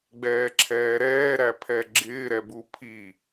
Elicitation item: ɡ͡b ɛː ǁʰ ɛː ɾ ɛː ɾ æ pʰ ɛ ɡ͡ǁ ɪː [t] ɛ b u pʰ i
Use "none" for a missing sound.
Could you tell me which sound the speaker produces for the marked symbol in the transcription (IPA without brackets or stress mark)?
ɾ